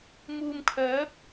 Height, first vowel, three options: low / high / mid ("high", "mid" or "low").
high